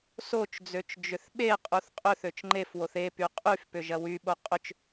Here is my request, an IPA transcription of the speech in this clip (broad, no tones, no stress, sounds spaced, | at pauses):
s o t͡ʃ d͡z ø t͡ʃ d͡ʒ ʏ θ ɓ e qʼ u θ qʼ ʏ θ ø t͡ʃ ŋ͡ǃ e f w o θ e p y qʼ y f p ʏ ʒ ɐ w y ɓ o qʼ ʏ t͡ʃ